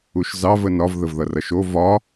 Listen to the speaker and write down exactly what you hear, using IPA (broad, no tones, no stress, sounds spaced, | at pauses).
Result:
u ʃ z ɑ v ə n ɒ v ð ə v ð ʌ r ʌ ʃ o v ɒ